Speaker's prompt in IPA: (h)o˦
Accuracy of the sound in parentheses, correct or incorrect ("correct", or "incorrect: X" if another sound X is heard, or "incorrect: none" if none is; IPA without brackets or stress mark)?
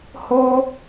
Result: correct